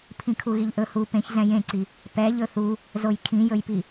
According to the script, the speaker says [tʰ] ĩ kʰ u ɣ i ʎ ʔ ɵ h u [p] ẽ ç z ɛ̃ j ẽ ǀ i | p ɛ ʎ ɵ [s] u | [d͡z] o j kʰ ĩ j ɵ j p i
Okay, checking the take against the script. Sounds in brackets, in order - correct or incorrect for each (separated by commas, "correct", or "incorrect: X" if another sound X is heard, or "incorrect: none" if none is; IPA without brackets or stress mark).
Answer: incorrect: pʰ, correct, incorrect: θ, incorrect: z